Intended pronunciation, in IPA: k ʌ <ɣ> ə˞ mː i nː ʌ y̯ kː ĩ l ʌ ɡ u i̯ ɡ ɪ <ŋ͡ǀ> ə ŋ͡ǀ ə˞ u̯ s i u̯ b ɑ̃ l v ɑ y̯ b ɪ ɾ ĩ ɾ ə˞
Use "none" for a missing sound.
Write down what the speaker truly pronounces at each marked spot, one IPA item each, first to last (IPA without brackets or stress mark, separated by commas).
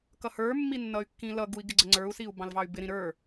h, ɡ͡ǀ